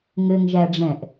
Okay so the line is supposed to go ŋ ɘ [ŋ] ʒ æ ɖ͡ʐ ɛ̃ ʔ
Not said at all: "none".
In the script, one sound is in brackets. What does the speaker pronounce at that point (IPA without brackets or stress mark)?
ŋ